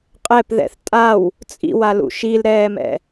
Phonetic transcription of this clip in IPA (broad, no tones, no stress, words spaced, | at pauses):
qʼɛpðɛ̰θ tʼaw | t͡sʼḭwalṵ ʃilɾɛːmɛ̰